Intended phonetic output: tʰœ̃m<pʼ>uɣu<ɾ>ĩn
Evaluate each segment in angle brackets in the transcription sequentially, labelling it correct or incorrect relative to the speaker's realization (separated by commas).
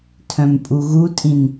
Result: correct, incorrect